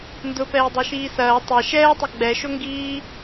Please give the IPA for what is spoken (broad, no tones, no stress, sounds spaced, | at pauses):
n d ʊ p ɛː dˤ e ʃ iː s ɐː tˤ ɐ ʃ ɛː tˤ ɐ ɡ͡b ɛ ʃ o ŋ ɡ iː